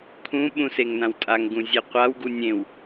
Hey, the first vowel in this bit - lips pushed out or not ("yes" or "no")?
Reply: yes